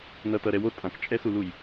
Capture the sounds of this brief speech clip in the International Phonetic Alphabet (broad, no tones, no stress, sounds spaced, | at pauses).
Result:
n ʌ t ʌ ɾ ɛ w o tʼ ã k t͡ʃʼ ɛ s u l u j